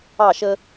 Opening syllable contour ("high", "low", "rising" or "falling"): falling